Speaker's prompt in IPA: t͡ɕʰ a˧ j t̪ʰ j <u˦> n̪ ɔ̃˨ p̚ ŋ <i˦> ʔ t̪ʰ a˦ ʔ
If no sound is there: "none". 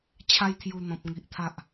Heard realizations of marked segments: u˨˩, i˨

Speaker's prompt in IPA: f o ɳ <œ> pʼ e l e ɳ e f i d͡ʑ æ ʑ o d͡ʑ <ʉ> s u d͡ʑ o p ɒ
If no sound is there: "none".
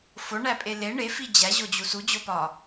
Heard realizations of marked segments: æ, u

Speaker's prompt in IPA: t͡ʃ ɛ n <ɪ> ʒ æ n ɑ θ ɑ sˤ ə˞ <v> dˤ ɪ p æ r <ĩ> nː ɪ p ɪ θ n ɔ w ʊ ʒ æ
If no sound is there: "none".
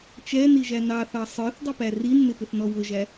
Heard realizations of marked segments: i, θ, i

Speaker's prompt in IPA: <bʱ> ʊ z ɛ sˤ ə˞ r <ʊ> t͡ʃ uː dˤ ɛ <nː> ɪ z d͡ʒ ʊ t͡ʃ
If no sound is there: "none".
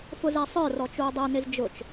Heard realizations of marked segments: f, ɔ, n

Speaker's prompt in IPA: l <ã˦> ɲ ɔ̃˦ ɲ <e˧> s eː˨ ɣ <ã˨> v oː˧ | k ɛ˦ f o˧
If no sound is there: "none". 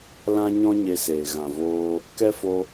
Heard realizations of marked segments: ã˦, e˧, ã˨

